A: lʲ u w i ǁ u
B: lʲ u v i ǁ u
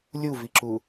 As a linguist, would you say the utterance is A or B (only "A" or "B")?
B